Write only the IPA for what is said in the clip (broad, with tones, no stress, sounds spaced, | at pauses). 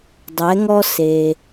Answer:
dˤ ɛ˨˥ ŋ ɔ˥ s e˨